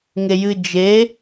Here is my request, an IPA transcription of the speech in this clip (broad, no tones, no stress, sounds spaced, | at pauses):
ŋ e j ɨ d͡ʒ e